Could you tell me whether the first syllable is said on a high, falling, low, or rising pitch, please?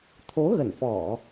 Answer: rising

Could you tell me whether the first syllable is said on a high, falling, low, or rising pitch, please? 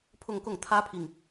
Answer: falling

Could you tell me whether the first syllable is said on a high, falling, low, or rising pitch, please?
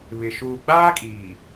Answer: low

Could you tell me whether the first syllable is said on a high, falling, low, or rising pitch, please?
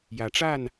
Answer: rising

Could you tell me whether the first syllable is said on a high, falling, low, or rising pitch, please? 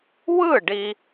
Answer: falling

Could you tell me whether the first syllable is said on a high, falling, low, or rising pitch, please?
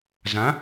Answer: rising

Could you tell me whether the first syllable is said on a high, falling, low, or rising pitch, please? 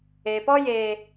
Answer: low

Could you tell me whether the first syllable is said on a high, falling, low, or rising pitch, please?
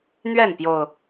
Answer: falling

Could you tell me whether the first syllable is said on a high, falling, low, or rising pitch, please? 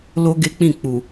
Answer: high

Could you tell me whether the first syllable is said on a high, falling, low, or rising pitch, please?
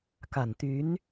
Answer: low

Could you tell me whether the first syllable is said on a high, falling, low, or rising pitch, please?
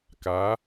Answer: rising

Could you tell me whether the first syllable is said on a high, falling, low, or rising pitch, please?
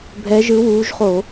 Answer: rising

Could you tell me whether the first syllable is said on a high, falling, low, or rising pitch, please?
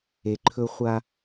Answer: low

